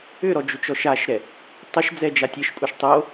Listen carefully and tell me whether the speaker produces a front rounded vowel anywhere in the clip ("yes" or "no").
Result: yes